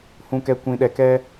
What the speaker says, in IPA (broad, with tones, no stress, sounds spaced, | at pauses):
h ũ˨ k ɛ˨ kʷ ĩ˨ ɗ ɛ˨ k ɛ˦